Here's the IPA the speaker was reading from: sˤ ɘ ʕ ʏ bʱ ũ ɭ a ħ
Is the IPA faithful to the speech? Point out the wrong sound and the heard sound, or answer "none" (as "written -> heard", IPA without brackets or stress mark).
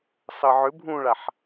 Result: none